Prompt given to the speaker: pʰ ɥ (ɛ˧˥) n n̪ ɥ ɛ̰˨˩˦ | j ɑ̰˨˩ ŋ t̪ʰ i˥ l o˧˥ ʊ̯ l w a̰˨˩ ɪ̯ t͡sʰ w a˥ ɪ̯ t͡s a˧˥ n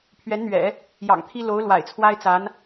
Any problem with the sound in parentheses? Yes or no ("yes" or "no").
no